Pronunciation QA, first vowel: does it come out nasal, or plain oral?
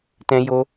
nasal